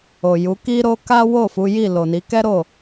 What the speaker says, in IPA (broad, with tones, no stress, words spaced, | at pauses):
o˨ju˨˦ki˦ɾo˦ ka˦wo˦˨ fu˨˦ji˦˨ lo˨ni˨˦ kɛ˦ɾo˦˨